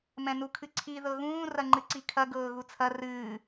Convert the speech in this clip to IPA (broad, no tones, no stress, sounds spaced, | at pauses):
m ɛ̃ n u kʰ ɨ ǀʰ i ð ɤ ɣ ũː r ɐ ŋ͡ǃ ɨ ǀ i kʰ ɐ ɡ ɤː ɣ u t͡sʰ ɐ r ɨː